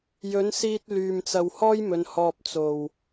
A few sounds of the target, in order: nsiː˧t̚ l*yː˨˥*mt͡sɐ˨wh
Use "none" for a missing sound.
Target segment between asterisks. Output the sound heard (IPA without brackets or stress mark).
yː˨